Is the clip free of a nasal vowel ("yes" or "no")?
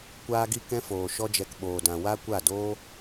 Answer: no